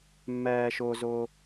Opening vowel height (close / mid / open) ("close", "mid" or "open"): mid